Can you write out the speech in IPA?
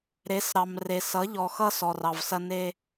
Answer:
ɾe˨˦s ɾɑ˨m re˨sʌ˨˦ ʎɔ˨xʌ˦ sɔ˨rɑ˨vsɐ˦ne˦

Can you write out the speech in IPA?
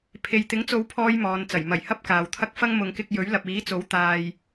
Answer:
pʰe˨jt̪ɪ˨˥ŋt͡so˨˧w pʰɔː˨˧j mɔː˨nt͡sɐ˨˩j mɐ˨˩jhɐ˥p̚ kaː˨wt̪ʰɐ˥k̚fɐ˥ŋ mʊ˨˧ŋkɪ˧k̚jɵ˨˥ɥ lɐ˨p̚iː˨˥t͡so˨˥w t̪aː˨j

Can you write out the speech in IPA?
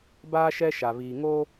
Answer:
baː˦ ʃɛ˦ʃa˨βiː˨ŋo˦

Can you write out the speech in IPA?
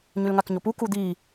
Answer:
ɲʉlŋakɲopu kud̪i

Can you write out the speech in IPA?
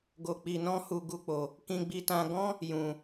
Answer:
ɡo˧k͡pi˧nɔ̃˦hu˧ ɡu˦k͡po˧ | kĩ˧ɡ͡bi˧tã˧ ɡɔ̃˦ | jũ˧

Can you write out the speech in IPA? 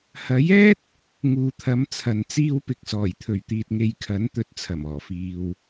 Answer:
hɐ˨˥jɛː˥t̚ | ŋuː˨t̪ʰɐ˨˧mt͡sʰɐ˨n t͡siː˧wpɪ˨k̚sɔː˨˩jt̪ʰɵ˨˩ɥ t̪iː˧t̚ŋe˧jkʰɐ˨˥n t̪ɵ˨˥t̚t͡sʰɐ˨˩mɔː˨˩ fiː˨w

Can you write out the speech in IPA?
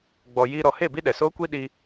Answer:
ɡ͡bɔ˨ ji˧ ɾɔ˨he˦˨ bi˦ɗɛ˨soː˦kʷi˦ ɗi˧

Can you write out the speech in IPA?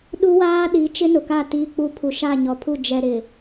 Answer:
ɗu˦waː˦ɗi˨˦ t͡ʃɪ˦nʊ˨ka˦˨ tiː˦k͡pu˦ pʰu˨ʃa˦˨ɲɔ˨pʰu˦˨ d͡ʒɛ˨ ɾɪ˨

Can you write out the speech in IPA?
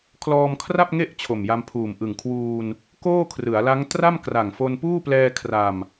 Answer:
kʰlɔː˧mkʰra˥˩p̚ŋe˥˩ʔ t͡ɕʰo˨˩mja˧mpʰuː˨˩m ʔɯ˨˩ŋkʰwuː˧n | koː˥˩kʰrɯ˩˦a̯la˦˥ŋ tra˥˩mkra˨˩ŋfo˧n puː˥˩plɛː˧ kʰra˧m

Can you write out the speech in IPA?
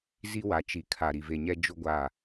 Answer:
zi˦wa˨˦ t͡ʃi˨kʰa˨ ɾi˨ve˨ɲɛ˦ d͡ʒʊ˦ɡʷa˦˨

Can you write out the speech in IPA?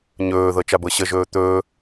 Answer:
ɲɵːðɤ t͡ʃabɤɕəʒɵː t̪ɵː

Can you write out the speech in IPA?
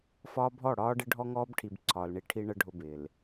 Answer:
fɒː˦bʱɔ˦˨ ɽɒː˦ɖɪ˦ ɖʱɔ˦ŋɔː˦bʈʰi˨b ǀʰɒː˨lɳi˦ ʈʰi˦ɳə˦ ɖʱʊ˦bɪː˨l

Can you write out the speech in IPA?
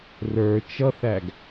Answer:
rə˞ t͡ʃʌθæɡ

